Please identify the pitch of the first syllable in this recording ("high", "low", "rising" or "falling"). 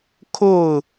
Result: falling